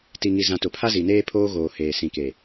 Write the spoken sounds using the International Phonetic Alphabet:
t i˨ ŋ i˨ z ã˨ t ʊ˨ pʰ a˦ z i˨ n eː˦ pʰ oː˦ ɣ oː˨ h eː˨ s ĩ˨ k e˨

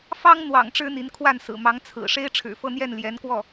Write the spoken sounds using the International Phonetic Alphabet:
f ɑ˥ ŋ n̪ w ɑ̰˨˩ ŋ ʈ͡ʂ ɻ̩˥ n̪ i˧˥ n kʰ w a˥˩ n s ɹ̩˨˩ m ɑ˧˥ ŋ t͡sʰ ɹ̩˨˩ ʂ e˥ ɪ̯ ʈ͡ʂʰ ɻ̩˨˩ f ɤ˥˧ n̪ j ɛ˥˩ n l j ɛ˧˥ n k w ɔ˥˩

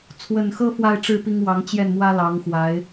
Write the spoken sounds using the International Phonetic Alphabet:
t͡sʰ w ə˨˩ n x ɤ˥ f w a˥˧ ɪ̯ ʈ͡ʂ ɻ̩˥˩ p i˥ ŋ w ɑ˧˥ ŋ t͡ɕ j ɛ˥˩ n m w ä˥ l ɑ˧˥ ŋ x w a˧˥ ɪ̯

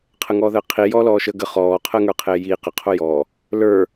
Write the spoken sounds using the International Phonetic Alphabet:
qʰ ə ŋ ɔː ð əː qʰ i j ɔː l ɔː ʃ əː ɡ ə χ ɔː qʰ əː ŋ ə˞ qʰ eː j iː q ə qʰ o j ɔ | l ə˞

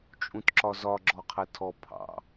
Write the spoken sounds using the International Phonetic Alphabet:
t͡ʃʼ ũ t ǁ ɒ z ɒ ɡ͡ǁ ɔ qʰ ɛ tʰ ɔ pʰ ɑ̰

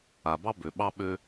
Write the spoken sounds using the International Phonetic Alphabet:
a˨ b ɑ˦ b ø˨ ɓ ɑ˦ ɓ ø˦

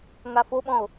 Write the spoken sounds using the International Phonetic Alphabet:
ŋ a f o ɓ ɔ̃ o̯

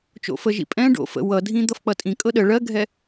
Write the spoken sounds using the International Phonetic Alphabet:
t͡ʃ o̰ f ə ʒ ḭ pʼ ɛ̃ ɖ o̰ f ə̰ w ʌ dʱ ĩ d̪ ʌ f k͡p ʌ tʼ ĩ kʼ ɤ ɗ ə ɭ ɜ ɡʱ ɛ

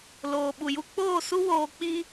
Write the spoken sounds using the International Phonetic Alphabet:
l oː˨ ɓ u˨ j u˧ k͡p oː˦˨ s u˦ w oː˧ k͡p i˦

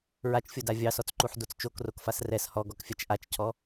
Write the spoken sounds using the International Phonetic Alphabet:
ɹ a t͡ʃ fʲ o d a vʲ ɑ s ɔ t͡s ǃ u ħ d o t͡s t͡ʃ o k r o k f a s r ɛ s h ɔ ɡ ɔ k fʲ a t͡ʃ ʔ a t͡ʃ cʰ ɔ

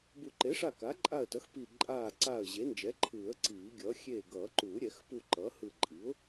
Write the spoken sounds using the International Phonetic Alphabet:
b u˨˩˦ ǃ e˩˥ ʂ a˧˩ k a˩˥ ǃʼ a˧˩ ə̯ t ʌ˩˥ x p i˧˩ ǃʼ aː˧˩ ǀ a˧˩ ə̯ ʑ e˩˥ n d͡ʒ ɛ˩˥ ǃʰ ɯː˨˩˦ ə̯ ǀ iː˨˩˦ ɡʲ ʌː˩˥ xʲ eː˧˩ ɡ ʌː˨˩˦ ǃ uː˨˩˦ ɾʲ ɛ˨˩˦ x p u˧˩ ǃ ʌː˩˥ h ɯ˧˩ ǃʼ i˩˥ ʊ̯

